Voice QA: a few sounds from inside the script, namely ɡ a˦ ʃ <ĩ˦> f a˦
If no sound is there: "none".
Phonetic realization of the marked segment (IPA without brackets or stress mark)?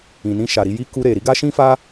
ĩ˦